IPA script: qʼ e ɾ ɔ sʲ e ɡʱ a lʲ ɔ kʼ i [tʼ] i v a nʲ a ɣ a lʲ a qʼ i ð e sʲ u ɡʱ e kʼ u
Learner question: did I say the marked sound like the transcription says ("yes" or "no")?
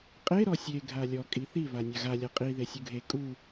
no